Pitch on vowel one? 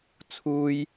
high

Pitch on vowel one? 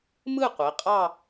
falling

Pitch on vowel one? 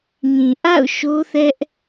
low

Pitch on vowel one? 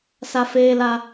high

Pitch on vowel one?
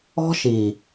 high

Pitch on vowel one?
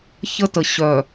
high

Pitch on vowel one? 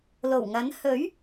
low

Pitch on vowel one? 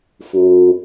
low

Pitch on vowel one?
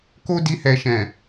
high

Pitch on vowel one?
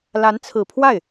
rising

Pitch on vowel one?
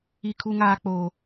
high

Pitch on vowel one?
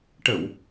low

